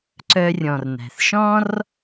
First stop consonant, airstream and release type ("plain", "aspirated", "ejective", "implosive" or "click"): click